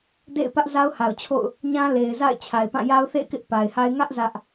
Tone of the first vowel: falling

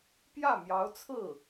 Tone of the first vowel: falling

